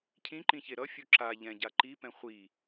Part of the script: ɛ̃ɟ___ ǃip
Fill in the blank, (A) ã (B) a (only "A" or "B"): B